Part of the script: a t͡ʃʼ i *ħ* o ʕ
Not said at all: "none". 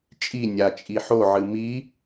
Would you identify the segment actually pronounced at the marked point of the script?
ħ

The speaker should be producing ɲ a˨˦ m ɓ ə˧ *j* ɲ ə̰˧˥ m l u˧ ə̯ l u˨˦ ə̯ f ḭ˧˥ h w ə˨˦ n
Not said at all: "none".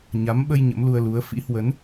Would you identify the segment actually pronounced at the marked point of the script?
j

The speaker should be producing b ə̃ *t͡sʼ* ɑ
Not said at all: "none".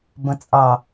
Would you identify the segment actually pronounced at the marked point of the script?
t͡sʼ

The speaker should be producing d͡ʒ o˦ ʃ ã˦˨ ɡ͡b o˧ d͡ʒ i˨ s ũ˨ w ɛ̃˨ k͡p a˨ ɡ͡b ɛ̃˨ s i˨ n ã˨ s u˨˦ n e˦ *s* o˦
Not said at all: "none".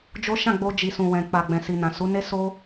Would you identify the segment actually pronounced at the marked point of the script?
s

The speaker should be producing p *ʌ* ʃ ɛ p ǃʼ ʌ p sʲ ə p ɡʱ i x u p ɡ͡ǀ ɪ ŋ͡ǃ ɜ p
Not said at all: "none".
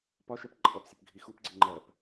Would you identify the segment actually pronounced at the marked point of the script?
ɒ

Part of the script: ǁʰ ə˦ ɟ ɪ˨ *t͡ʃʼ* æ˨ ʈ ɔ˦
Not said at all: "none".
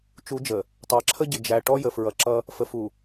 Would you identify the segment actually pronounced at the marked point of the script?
d͡ʒ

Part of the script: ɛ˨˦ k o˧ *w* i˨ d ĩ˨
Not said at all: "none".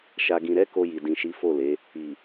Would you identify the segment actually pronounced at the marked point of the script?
j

